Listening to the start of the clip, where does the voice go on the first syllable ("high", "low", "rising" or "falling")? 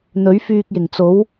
rising